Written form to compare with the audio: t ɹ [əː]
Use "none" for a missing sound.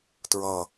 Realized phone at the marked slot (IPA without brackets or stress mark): ʌː